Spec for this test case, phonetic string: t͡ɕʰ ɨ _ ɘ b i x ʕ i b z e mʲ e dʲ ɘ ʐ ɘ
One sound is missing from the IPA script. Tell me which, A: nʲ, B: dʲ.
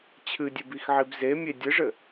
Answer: B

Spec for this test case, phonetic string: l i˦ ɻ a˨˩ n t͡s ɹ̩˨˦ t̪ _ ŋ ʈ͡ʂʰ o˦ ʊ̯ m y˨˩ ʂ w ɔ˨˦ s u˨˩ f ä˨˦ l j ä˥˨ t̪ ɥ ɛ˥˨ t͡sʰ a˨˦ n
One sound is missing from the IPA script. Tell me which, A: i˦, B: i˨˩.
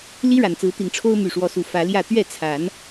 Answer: B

